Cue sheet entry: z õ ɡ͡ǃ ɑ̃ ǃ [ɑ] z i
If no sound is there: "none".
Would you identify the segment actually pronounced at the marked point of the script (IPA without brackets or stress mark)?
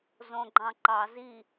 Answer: ɑ